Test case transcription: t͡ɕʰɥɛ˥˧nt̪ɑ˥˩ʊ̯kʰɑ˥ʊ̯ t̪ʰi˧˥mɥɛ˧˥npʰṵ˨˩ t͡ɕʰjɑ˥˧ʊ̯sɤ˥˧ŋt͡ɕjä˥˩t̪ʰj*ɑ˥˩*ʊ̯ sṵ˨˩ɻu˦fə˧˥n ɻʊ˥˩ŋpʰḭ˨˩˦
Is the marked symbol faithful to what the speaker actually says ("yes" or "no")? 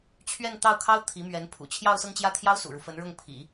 no